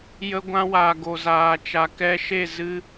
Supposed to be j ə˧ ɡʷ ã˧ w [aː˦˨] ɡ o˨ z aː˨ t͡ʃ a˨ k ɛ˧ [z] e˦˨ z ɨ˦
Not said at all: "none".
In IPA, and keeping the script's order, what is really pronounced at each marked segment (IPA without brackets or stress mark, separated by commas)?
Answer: aː˨, ʃ